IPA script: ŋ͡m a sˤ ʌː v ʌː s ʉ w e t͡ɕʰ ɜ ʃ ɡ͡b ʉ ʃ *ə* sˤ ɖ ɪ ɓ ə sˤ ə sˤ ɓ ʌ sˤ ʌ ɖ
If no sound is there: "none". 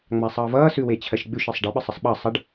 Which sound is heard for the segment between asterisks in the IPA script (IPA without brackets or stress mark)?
ə